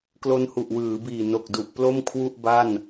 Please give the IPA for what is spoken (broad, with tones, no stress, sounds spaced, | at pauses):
k l o˧ n h u˨˩ ʔ w ɯː˩˦ b iː˨˩ n o˨˩ k̚ d u˨˩ ʔ p l o˥˩ m kʰ w u˥˩ ʔ b a˥˩ n